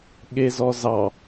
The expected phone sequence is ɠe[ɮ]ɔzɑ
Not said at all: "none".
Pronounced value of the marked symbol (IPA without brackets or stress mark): z